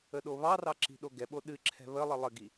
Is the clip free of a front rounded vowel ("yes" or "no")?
yes